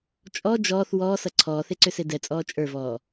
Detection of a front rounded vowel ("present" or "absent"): present